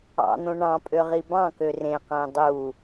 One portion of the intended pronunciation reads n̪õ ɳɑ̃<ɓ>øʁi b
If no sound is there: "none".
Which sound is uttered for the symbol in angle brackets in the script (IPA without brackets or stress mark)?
pʼ